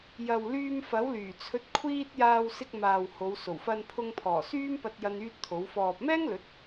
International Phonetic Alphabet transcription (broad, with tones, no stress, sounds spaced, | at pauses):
j ɐ˨ w l yː˧ m f ɐ˨˥ w l yː˨˩ t͡sʰ ɵ˧ t̚ kʷʰ iː˥ t̚ j aː˧ w s ɪ˧ k̚ m aː˨ w h o˨˧ w s o˨˩ w f ɐ˧ n pʰ ʊ˧ ŋ pʰ ɔː˨˩ s yː˥ m p ɐ˧ t̚ j ɐ˥ n yː˥ t̚ t̪ʰ o˨˥ w f ɔː˨ p̚ m ɛː˥ ŋ l ɵ˨˥ t̚